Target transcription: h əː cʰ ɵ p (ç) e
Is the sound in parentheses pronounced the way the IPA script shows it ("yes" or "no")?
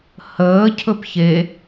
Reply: yes